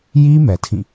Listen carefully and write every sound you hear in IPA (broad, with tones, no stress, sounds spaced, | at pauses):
j i˦ m ɛ˨ tʰ ĩ˦˨